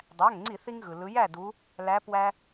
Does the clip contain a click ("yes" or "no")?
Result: yes